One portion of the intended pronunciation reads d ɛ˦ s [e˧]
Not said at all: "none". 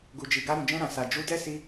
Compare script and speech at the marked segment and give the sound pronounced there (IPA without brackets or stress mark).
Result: i˧